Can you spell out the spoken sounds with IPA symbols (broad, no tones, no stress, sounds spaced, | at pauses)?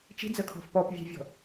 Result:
t͡ʃ i̤ d͡z ə kʰ ɔ̤ f p ɔ p vʲ e̤ vʲ ɔ̤